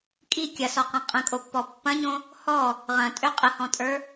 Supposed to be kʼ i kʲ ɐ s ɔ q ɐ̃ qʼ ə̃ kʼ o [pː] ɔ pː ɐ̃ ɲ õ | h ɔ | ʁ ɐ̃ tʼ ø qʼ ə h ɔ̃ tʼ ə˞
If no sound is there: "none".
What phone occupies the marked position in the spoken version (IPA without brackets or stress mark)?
pː